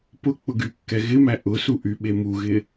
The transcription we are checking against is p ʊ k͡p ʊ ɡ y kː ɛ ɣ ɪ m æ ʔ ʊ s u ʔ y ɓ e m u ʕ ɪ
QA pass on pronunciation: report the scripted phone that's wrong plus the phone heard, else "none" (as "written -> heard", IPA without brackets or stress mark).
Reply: ʕ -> ɣ